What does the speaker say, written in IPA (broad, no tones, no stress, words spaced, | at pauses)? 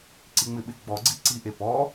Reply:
ǀiŋ͡mɪɓɪ ɡ͡bɔɡ͡ǀi ǀiʔe pɔ